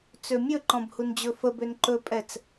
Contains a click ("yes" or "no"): yes